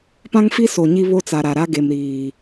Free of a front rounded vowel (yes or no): yes